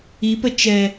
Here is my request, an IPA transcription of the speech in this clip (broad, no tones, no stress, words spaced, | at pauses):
ipə t͡ʃɛ